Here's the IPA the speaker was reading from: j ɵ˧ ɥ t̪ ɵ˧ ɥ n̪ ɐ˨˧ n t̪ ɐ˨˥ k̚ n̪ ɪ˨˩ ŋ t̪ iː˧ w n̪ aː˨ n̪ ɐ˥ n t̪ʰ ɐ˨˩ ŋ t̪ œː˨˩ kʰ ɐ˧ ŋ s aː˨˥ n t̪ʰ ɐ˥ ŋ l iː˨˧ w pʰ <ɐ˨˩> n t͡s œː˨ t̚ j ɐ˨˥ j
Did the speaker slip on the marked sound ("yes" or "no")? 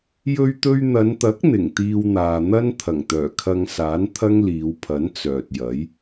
yes